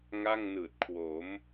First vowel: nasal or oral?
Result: oral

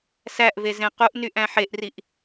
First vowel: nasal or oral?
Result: oral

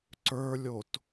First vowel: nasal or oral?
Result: oral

